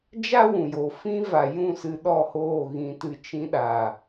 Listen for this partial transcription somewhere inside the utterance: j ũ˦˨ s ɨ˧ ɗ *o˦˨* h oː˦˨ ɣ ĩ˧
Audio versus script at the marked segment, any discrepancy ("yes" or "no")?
yes